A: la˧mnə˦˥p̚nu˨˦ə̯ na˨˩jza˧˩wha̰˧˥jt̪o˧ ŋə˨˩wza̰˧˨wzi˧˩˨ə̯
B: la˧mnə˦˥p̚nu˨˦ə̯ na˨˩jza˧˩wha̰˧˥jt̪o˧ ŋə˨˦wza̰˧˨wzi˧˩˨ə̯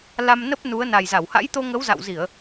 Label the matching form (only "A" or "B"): B